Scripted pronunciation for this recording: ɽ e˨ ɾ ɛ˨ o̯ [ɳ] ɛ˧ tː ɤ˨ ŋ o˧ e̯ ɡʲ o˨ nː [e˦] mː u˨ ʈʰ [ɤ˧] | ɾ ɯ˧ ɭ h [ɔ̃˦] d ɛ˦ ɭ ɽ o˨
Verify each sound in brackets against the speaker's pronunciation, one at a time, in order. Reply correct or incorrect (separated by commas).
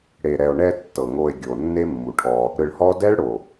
correct, correct, incorrect, incorrect